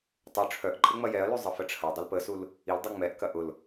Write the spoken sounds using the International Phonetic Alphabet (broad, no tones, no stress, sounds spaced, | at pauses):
tˤ ʊ ʈ͡ʂʰ œ ʔ ǃʼ ə ŋ͡m ɐ j ɛ ɐ̯ l y zˤ ə f ə ʈ͡ʂʰ ɐ dˤ ə l p ə s u l | i l dˤ y ŋ͡m ɛ ʔ k ɐ ʔ ʊ l